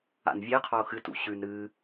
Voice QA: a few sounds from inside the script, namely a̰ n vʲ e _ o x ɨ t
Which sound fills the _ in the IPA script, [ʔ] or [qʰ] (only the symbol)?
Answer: qʰ